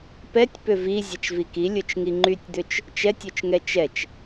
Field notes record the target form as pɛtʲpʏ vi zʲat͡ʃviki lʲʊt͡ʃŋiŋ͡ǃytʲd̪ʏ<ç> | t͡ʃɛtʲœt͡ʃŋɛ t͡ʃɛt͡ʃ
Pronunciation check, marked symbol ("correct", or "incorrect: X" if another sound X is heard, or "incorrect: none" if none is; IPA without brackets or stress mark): incorrect: t͡ʃ